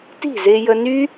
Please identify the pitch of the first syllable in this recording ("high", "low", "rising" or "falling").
falling